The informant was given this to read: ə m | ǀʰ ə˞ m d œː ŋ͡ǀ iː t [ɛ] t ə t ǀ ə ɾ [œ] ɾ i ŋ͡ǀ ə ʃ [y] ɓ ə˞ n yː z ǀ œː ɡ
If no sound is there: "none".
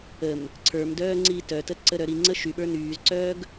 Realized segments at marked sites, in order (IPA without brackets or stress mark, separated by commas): œ, œ, y